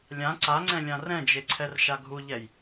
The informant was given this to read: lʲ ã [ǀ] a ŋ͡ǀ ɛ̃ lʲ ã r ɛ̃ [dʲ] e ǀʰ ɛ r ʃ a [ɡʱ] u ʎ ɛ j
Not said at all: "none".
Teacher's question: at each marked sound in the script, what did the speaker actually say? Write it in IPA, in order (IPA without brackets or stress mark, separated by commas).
ǀ, d͡ʒ, ɡʱ